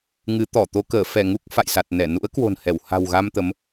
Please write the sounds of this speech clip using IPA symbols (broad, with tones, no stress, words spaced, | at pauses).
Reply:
ŋɨ˨˦t̪ɔ˧˩t̪o˧ kəː˧˩fɛ˧˩ ŋu˦˥k̚fa̰˧˨jsa˨˩t̚nɛ˧˩ nṵ˧˥ə̯kwo̤˨˩n hɛ˧˩wha̤˨˩w ɣa˧mt̪ə˨˦m